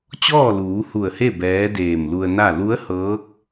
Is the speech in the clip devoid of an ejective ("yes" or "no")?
yes